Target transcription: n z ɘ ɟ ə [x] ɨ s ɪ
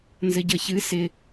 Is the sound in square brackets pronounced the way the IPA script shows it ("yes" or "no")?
no